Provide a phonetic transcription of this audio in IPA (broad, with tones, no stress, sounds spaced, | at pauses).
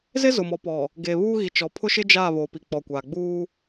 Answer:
z ɪ˦ z ʊ˨ m ɔ˨ p ɔ˨ | ɡ eː˨ β uː˦ ɣ i˨ t͡ʃ ɔ˨ pʰ ʊ˦ ʃ ɪ˦ d͡ʒ aː˦˨ β o˨ p i˨ k͡p ɔ˨ kʷ a˨ ɡ͡b uː˦